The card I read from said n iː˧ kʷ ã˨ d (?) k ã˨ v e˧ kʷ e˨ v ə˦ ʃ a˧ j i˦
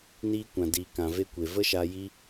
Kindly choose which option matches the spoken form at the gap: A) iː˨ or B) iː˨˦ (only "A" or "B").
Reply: A